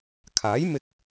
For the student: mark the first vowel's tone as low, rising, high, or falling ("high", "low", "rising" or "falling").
rising